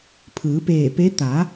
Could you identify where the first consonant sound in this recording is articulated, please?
labial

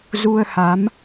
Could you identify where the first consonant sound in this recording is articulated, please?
alveolar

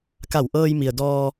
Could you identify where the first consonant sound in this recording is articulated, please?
velar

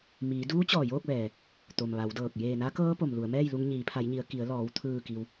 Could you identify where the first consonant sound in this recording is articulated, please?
labial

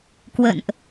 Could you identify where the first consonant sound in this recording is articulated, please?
velar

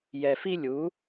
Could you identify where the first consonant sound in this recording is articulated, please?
palatal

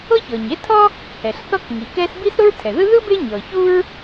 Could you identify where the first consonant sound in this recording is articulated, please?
palatal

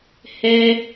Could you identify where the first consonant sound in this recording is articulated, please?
glottal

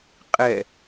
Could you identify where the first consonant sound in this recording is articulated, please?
uvular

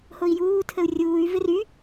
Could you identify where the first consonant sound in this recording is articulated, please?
glottal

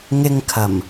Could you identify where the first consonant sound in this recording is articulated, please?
velar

